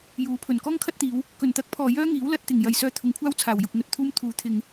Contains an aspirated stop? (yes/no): yes